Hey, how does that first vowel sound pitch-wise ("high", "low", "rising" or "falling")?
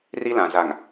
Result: high